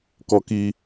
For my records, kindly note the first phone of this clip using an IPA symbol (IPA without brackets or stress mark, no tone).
k